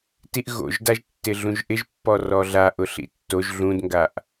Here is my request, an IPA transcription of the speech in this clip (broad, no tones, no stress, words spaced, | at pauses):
tiʔɣo̰ʒdaʒtːɪ ɮũʒʔɪʒpːɔ rɔɮa ʔʊɬḭtːoʒ ɮũdŋɡaʔ